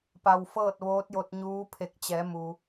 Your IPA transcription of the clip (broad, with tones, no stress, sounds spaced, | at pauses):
p a˧ w f ɤː˥˨ t̚ ʋ oː˧˥ t̚ j o˧ t̚ ɲ uː˧˥ pʰ e˧˩ k̚ t͡ɕ ɛː˩˧ m u˩